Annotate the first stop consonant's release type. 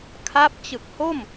aspirated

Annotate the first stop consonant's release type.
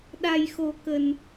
implosive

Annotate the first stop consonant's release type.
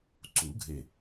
click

